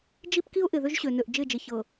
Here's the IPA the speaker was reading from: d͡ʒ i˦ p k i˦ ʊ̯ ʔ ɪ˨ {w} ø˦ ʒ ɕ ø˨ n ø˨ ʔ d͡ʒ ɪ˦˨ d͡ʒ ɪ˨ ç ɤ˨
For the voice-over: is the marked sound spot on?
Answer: no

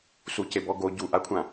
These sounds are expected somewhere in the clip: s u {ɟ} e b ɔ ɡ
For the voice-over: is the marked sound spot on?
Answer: no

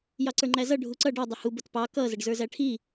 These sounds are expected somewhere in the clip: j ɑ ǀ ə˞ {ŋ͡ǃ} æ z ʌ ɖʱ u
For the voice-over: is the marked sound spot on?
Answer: yes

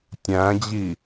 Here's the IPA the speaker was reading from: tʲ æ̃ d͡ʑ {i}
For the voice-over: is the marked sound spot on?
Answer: yes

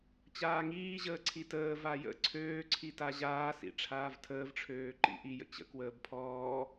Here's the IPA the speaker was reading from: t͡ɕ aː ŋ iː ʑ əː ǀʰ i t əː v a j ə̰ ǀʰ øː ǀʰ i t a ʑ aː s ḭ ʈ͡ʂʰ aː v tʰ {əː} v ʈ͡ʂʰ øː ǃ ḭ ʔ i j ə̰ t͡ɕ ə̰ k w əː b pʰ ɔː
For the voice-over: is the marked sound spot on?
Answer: yes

